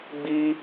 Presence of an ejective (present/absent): absent